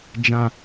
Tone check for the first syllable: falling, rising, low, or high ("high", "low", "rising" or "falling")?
low